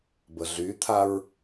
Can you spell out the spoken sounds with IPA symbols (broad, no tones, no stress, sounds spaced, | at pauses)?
b ə ɮ y t̪ʰ a ɹ